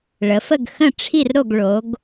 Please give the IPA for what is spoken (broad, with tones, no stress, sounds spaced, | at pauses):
ɭ ə˩˧ f ə˦˨ ɡ x ə̃˦˨ ʈ͡ʂʰ i˦˨ r ɾ o˦˨ ɡ ɭ o˩˧ ɡ